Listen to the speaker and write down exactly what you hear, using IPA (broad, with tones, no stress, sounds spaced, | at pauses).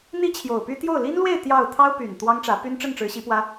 n̪ i˥ t͡ɕʰ j o˨˩ ʊ̯ p y˥ t̪ j o˥˩ ʊ̯ l i˥ n l w e˥˧ ɪ̯ t̪ j ɑ˥˩ ʊ̯ t̪ʰ ɑ˥ ʊ̯ p y˨˩ n t̪ w ɑ˥ ŋ ʈ͡ʂ ä˧˥ p y˥ n ʈ͡ʂ ə˥˩ n ʈ͡ʂ ɻ̩˧˥ ɕ i˧˥ p w ä˥